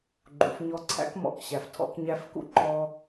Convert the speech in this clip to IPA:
ɡ͡ǃ ṵ˩˧ f ɲ ɔ˧ ǀʰ æ̰˧˥ k m ɔ̰˩˧ k ɕ æ˩ f tʰ ɔ̰˧ k ɲ æ˧˥ f k ṵ˥ ǃ ɔ˧

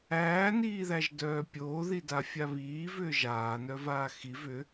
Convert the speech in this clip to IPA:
æː n iː ð æ ʒ d œː pʲ oː ð i d a fʲ a β iː v ʏː ʒ aː n œ v aː x i v ʏ

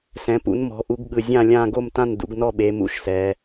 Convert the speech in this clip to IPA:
s ɛ̃˩˧ p ṵ˩˧ n m ɔ̤˩˧ ʔ u˩˧ ɡ ɠ ɯ˨˩ zʲ ã˦˨ lʲ ãː˦˨ ɡ o˦˨ m t ã˦˨ n d ṵ˩˧ ɡ n ɔ˦˨ ɓ e˩˧ m ṵ˩˧ ʃ s ɛ˩˧

